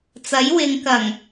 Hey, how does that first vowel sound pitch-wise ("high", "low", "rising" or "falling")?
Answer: rising